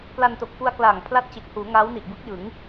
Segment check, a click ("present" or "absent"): absent